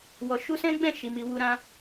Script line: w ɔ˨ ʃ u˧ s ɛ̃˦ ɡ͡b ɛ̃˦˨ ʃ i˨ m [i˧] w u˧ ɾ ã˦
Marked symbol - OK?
no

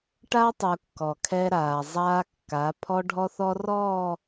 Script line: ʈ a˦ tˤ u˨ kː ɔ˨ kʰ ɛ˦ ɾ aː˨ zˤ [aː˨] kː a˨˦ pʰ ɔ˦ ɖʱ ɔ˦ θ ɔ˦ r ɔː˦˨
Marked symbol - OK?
no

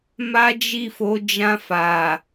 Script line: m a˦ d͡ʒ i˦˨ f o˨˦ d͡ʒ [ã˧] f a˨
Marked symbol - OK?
yes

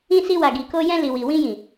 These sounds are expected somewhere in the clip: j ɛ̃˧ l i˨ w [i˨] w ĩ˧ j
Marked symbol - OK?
yes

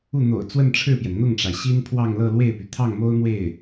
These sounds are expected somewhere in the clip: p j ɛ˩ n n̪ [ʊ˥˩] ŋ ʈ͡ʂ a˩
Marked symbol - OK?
yes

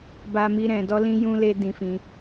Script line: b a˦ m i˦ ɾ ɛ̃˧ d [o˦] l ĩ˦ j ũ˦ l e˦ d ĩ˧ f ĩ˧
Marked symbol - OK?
no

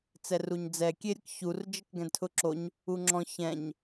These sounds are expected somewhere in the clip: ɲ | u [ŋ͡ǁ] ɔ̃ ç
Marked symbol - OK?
yes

